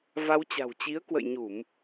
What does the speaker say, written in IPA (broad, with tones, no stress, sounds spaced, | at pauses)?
v a˧ w t͡ɕ a̤˨˩ w t͡ɕ i˨˦ ə̯ k w ə̰˧˨ j ɲ u˧˩˨ m